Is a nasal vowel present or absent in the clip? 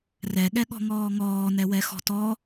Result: absent